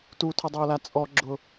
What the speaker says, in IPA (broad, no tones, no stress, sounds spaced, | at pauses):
t u tʰ ʊ dˤ oː l a t͡sʼ ɔ ɡ͡ǁ ʊ